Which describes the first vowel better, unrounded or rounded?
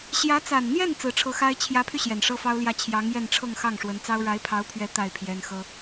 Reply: unrounded